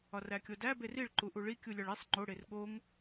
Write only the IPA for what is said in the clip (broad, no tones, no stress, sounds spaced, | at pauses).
ɒ r æ kʲ o d æ b e r i ɭ ǃ u ʔ u ɭ i kʲ u lʲ ɒ ɭ i sˤ ŋ͡ǃ o ɽ e r ɠ o ŋ